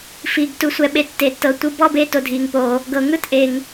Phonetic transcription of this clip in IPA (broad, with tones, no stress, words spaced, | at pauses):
fiː˨ɡ tu˨sʷɛ˨ɓe˨ tːe˨tːɤ˨ tʷɯ˥˧ bɔ˥˧be˥˧ to˨dʱiː˨ŋpoː˨ | ɡɤ˨ŋɯ˥˧t ʔe˨ŋ